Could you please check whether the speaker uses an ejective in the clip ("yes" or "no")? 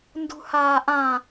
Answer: no